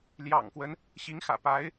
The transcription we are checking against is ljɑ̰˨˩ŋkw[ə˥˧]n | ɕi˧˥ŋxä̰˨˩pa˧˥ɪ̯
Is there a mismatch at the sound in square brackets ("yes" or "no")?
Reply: yes